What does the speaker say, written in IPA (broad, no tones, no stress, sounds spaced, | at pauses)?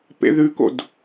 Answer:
p ḛ ð ʉ k o̰ d